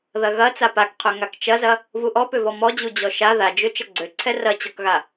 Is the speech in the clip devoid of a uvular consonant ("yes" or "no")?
no